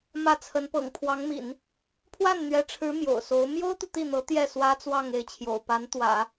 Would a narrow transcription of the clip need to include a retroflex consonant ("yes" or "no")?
yes